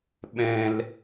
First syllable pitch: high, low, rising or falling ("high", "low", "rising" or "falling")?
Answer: high